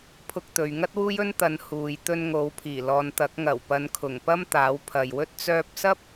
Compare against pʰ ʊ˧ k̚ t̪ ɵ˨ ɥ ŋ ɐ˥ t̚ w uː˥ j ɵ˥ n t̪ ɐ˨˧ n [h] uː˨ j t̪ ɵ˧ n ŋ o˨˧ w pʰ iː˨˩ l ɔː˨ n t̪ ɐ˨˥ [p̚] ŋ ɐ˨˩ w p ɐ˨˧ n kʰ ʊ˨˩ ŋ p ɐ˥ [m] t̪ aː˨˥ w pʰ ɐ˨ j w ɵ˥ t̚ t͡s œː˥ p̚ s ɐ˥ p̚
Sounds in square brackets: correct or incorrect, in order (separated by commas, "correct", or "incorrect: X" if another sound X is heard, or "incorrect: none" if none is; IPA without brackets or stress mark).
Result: correct, incorrect: k̚, correct